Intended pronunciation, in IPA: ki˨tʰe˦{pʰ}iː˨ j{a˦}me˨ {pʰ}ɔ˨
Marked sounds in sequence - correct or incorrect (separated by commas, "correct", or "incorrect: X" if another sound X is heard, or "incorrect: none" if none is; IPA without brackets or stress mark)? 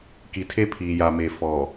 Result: correct, incorrect: a˨, incorrect: f